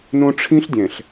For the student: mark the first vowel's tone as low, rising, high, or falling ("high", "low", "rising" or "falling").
high